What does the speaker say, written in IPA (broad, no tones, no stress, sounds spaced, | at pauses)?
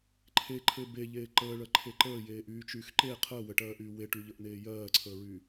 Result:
ǃʰ e ǃʰ e b e ʎ eː ǃ əː ɭ ɜ ǃʰ e ǃ əː j eː ʔ yː t͡ʃ yː x ǃ e qʰ əː w ə ʈ ɜː ʔ yː w e ʈ y ʎ ə ʔ n eː j ɜː ǀʰ əː ɹ y